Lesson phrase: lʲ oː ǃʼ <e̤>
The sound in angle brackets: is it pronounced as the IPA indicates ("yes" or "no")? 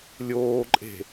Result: yes